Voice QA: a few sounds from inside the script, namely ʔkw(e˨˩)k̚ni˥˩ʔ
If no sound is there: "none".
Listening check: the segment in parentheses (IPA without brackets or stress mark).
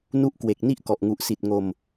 e˨˩